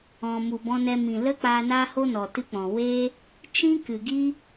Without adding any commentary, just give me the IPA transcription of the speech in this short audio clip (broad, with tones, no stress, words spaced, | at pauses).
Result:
ɔ̃˨mu˨bɔ̃˧nɛ˧ mĩ˨lə˦ k͡paː˧naː˦ho˦nɔ˨ tɨ˦k͡pɔ̃˨ we˦ | t͡ʃĩ˦kɨ˨ɡi˦